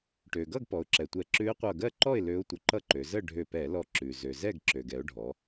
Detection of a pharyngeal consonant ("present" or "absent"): absent